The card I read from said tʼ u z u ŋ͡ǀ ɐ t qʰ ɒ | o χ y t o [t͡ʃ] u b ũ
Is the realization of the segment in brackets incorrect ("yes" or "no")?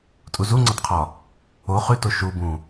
yes